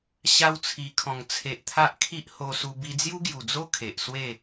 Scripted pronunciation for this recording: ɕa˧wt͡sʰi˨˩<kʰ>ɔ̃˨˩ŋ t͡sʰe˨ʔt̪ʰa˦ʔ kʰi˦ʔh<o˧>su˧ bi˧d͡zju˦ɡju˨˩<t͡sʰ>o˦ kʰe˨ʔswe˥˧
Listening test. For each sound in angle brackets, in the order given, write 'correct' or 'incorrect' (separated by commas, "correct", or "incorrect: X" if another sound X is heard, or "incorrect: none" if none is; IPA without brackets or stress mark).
correct, correct, incorrect: d͡z